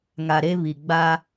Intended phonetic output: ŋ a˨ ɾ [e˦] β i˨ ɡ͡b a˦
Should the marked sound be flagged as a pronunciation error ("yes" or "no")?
no